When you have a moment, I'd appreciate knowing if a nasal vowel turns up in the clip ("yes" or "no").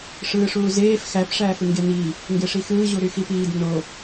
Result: no